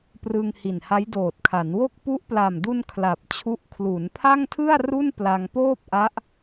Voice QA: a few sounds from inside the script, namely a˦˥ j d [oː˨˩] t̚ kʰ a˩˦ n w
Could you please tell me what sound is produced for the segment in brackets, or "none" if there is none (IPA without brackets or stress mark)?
oː˨˩